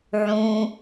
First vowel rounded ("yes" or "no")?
yes